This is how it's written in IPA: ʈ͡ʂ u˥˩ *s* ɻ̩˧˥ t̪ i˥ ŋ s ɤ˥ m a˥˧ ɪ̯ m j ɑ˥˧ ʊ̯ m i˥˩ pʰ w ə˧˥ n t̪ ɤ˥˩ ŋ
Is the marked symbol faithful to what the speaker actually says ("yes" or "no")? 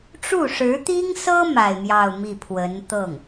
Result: no